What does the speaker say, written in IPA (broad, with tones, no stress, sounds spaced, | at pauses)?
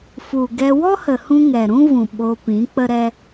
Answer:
f u˨ ɡ ɛ˧ w ɔ˦ h ə˨ h ũ˧ ŋ ɛ˨ ɾ ũ˦ v ũ˨ ɓ o˧ p ĩ˨˦ k͡p ə˦ ɾ ɛ˦